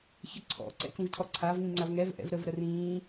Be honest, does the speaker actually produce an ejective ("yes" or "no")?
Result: no